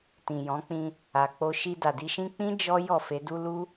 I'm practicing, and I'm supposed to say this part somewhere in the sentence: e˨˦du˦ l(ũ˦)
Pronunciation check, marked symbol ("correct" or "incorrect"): incorrect